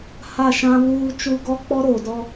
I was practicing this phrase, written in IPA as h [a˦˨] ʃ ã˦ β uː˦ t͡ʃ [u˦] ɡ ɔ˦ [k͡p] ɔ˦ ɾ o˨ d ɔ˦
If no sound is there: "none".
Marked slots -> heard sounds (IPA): a˦˨, u˦, k͡p

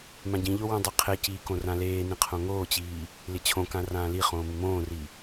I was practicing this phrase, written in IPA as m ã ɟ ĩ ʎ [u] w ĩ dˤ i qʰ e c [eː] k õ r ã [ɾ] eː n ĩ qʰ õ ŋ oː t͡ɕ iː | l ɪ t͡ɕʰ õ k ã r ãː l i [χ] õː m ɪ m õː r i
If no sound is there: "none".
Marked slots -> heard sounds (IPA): o, iː, l, χ

